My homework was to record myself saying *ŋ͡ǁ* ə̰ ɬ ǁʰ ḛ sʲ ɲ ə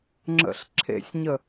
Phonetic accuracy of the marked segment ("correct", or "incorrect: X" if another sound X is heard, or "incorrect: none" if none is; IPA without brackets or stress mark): correct